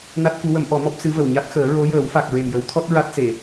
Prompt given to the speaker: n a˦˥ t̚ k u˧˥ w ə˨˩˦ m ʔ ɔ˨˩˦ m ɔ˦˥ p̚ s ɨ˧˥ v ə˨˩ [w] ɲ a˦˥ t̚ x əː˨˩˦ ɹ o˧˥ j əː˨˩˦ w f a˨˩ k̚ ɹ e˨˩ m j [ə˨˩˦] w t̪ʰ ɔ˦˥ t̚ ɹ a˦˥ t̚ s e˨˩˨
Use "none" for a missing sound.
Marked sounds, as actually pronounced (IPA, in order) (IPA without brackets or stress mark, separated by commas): w, ə˨˩˦